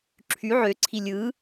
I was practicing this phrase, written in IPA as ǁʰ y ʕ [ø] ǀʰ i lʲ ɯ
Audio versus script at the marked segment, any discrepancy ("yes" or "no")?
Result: no